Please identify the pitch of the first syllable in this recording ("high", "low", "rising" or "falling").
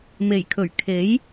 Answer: low